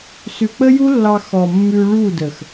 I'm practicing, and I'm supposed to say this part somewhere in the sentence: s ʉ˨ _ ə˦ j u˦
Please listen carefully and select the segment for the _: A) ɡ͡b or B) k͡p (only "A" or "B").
B